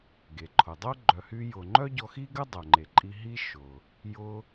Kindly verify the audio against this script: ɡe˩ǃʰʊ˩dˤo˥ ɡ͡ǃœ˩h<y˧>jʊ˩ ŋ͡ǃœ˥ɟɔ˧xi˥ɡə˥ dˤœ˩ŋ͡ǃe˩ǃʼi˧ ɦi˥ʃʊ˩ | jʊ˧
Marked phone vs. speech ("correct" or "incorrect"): correct